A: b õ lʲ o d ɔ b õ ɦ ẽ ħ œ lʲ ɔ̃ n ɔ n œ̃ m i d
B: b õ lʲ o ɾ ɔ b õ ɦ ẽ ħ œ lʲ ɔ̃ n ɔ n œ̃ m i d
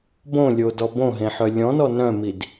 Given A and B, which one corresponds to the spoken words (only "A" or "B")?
A